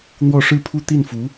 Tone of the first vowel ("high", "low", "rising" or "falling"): falling